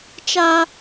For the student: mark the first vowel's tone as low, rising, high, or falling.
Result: high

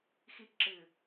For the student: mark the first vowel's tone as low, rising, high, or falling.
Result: low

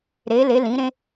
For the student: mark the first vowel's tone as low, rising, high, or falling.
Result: rising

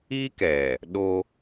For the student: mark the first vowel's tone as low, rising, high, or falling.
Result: high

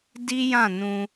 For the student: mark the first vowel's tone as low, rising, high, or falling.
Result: high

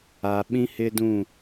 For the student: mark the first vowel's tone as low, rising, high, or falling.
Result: low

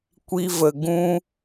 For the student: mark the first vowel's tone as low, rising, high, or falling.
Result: high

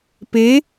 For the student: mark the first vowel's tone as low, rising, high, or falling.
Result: rising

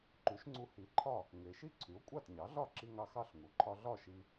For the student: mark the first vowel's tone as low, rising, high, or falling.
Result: rising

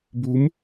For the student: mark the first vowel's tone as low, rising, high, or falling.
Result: rising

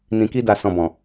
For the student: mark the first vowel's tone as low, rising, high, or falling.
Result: low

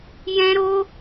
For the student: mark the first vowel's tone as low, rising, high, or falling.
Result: high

